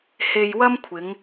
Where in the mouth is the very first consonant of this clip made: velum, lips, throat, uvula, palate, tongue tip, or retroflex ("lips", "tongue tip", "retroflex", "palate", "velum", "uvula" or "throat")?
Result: throat